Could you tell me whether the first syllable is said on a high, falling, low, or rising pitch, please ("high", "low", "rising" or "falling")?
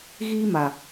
high